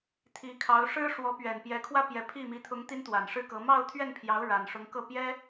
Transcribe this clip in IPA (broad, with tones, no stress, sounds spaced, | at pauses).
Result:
t̪ʰ i˧˥ kʰ ɑ˧˥ ʊ̯ ʂ ɻ̩˥ ʂ w ɔ˧˥ p ɥ ɛ˨˩ n p j ɛ˧˥ kʰ w ä˥ p j ɛ˧˥ pʰ i˥˩ m i˧˥ t̪ʰ ʊ˧˥ ŋ t̪ i˥ n t̪ w a˨˩ n ʂ ɻ̩˥ k ɤ˧˥ m ɑ˥˧ ʊ̯ t̪ʰ ɥ ɛ˥˩ n pʰ j ɑ˧˥ ʊ̯ ɻ a˨˩ n ʂ ʊ˧˥ ŋ k ɤ˥˩ p j ɛ˥